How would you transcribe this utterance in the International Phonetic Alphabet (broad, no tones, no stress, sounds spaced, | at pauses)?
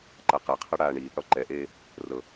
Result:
ǃ a q ɛ qʰ ɤ ɽ aː ɳ iː p ɽ ɔ ǃ ɛ ʔ eː | r ɤ